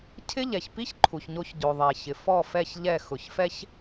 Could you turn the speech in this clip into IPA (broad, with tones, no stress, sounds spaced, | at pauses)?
cʰ ɪ˦ ʎ ɛ˨ ç p i˦ ç ǃʰ u˨ ç ɲ o˦ ç ɟ o˨ ðˤ ɛ˨ ç ɪ˨ f ɔ˦˨ f ɛ˦˨ ç ʎ ɛ˦˨ x ʊ˨ ç f ɛ˦ ç